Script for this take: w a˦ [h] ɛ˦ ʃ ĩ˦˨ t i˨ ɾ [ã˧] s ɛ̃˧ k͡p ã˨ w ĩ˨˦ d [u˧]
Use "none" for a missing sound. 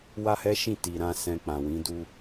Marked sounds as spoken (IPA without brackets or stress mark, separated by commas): h, ã˧, u˦